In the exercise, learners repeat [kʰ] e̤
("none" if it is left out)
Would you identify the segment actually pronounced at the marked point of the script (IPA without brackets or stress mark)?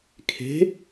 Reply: kʰ